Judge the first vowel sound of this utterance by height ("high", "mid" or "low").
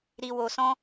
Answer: high